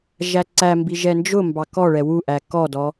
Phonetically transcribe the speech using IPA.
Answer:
ʒ æ ǀ æ m b i ʒ ɛ n d͡ʒ ʊ m b ɑ k ɔ ɭ ɛ w u ʔ æ k ɔ d ɔ

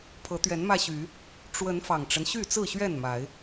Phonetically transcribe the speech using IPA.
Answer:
pʰ ɤ˨˦ t̪ ɥ ɛ˨˦ n m ä˧ ɕ y˨˦ | ʈ͡ʂ w ə˨˦ n f ɑ˨˩ ŋ ʈ͡ʂ ə˦ n ɕ y˥˨ t͡s ɹ̩˥˨ ɕ ɥ ɛ˥˨ n m a˨˦ ɪ̯

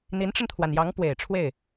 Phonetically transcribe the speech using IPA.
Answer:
n̪ i˧˥ n ʈ͡ʂ ə˧ n t̪ʰ w a˩ n j ɑ˧˥ ŋ p w e˨˩ ɪ̯ ʈ͡ʂʰ w e˥˩ ɪ̯

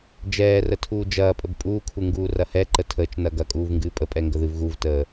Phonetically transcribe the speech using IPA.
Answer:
d͡ʒ ɛː r ə tʰ uː d͡ʒ ɐː pʼ ə b pʼ uː kʰ u ŋ ɡ uː r ɐ h ɛ ǃ ə tʰ əː t͡ʃ n ɐ ɡ ɐ kʼ uː v ŋ ɡ ɨː pʼ ə pʼ ɛ ŋ ɡ ə ð ɨ v ɣ u v t əː

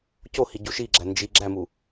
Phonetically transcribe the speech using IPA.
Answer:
c o h i ɟ u ʃ i ɡ͡ǁ æ n d͡ʒ i ɡ͡ǁ æ m u

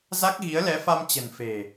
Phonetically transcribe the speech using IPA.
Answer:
z a˦˥ k̚ ɣ i˨˦ ə̯ l ɛ˨˦ f a˧ m t͡ɕ ə̤˨˩ n f e̤˨˩

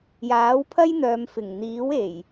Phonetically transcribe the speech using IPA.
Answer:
j aː˨˥ w pʰ ɐ˥ j n̪ œː˨˧ m f ɪ˨˩ ŋ n̪ iː˨˥ w e˨˩ j

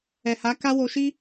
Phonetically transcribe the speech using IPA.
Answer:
ɛ˨ h a˨˦ k a˦ w o˧ ʃ i˦

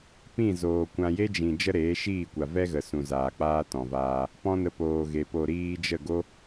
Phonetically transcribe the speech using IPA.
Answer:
p ĩ˦˨ z oː˨ kʷ ã˧ j e˦ d͡ʒ ĩ˨ d͡ʒ ə˦ ɾ eː˨˦ ʃ iː˦˨ kʷ a˨ v ɛ˦ ɣ ə˨ s ũ˨ z aː˨ k͡p aː˦ t ɔ̃˨ v aː˧ | p ɔ̃˦ n ə˧ p oː˨ ɣ e˨ p o˨ ɾ iː˧ d͡ʒ ə˦˨ ɡ o˦

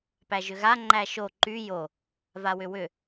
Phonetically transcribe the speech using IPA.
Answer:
p æ ʒ ʏ ɣ a ŋ͡ǃ æ ʃ o ǃ y j o | v a w ʏ w ʏ

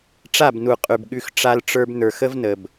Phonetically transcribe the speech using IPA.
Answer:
ʈ͡ʂ a˦˨ b n u˨ qʼ ʉ˨ b ɠ ʉ˧ x ʈ͡ʂ a˦ l ʈ͡ʂ ə˞˦ b n ə˞˨ x ə˦ v n ə˨ b

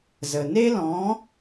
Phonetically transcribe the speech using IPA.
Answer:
z ə˨ n e˦ l ɔ̃˨˦

